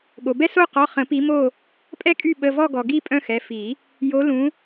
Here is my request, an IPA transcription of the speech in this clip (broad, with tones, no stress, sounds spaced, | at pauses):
ɠ o˩ b ɛ˦ s o˦˨ q ɔ˩˧˩ χ ə̃˨˩˦ p i˨˦ m o˦˨ | pʼ ɛ˦ kʼ y˦˨ ɓ ə˩˧˩ v ɔ˦˨ ɡ ɔ˩ ɡ i˦˨ pʼ œ̃˦ x ɛ˩˧˩ f i˨˩˦ | j o˨˦ l ũ˨˦